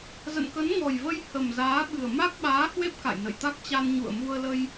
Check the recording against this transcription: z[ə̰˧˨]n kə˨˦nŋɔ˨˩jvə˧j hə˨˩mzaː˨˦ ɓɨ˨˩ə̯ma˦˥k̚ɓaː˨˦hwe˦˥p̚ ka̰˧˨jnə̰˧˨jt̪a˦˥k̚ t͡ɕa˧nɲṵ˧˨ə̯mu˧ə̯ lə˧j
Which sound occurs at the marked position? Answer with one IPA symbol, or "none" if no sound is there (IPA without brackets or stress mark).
ə̰˧˨